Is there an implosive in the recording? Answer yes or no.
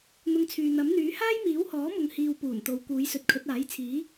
no